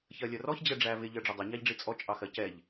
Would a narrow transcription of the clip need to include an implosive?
no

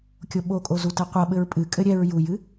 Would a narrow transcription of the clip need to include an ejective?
yes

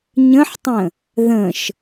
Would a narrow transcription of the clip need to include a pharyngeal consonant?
yes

